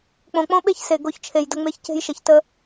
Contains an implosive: yes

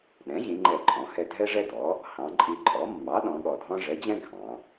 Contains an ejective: yes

